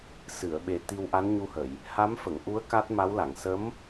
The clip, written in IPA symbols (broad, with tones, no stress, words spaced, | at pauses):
sɨ˨˩˨ə̯ɓe˨˩ t̪i˧w ʔa˧˥nɲu˧hə˨˩˨j | ha˧˥mfə˨˩˨ŋʔu˧˥ə̯ ka˦˥t̚ma˧˥w la˨˩˨ŋ sə˧˥m